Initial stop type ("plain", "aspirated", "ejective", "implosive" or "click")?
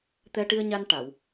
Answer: plain